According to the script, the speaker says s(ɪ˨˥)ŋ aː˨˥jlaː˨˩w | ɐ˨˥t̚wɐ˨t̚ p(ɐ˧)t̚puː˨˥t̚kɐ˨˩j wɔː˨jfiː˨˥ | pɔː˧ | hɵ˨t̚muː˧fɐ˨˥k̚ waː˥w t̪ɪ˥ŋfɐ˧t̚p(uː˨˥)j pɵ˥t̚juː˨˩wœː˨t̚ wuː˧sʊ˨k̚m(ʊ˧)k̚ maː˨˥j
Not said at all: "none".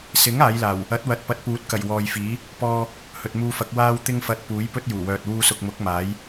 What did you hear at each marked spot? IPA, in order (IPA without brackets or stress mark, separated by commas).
ɪ˨˥, ɐ˧, uː˨˥, ʊ˨˥